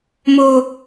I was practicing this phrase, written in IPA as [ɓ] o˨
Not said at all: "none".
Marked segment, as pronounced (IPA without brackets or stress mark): m